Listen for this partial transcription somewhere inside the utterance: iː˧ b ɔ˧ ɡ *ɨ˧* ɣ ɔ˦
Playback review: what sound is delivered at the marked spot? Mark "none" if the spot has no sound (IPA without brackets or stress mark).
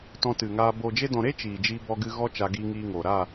ɨ˧